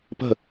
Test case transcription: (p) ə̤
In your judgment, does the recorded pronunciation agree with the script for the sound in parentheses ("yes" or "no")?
yes